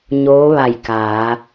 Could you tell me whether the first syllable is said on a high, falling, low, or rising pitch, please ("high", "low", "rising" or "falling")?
rising